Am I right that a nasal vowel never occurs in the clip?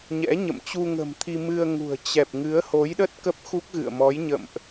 yes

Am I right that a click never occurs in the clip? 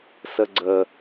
no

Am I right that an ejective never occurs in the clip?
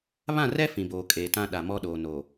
no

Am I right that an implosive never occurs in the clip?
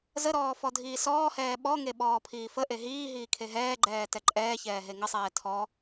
no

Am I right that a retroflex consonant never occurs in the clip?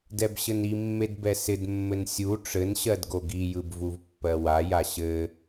no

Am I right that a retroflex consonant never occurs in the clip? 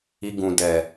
yes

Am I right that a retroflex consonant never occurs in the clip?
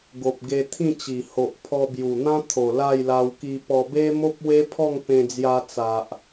yes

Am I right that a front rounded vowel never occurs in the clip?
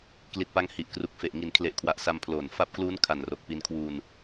yes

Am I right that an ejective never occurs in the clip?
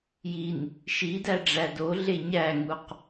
yes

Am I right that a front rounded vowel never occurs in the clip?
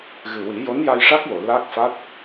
yes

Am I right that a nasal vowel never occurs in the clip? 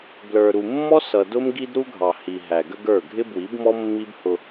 yes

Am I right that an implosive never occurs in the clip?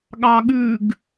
no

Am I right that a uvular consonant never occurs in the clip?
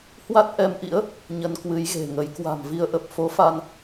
yes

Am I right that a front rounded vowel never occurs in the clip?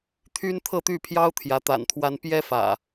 no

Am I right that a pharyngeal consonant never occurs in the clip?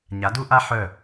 no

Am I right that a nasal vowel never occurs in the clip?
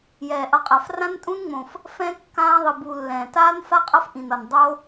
no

